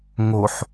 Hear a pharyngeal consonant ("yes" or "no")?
yes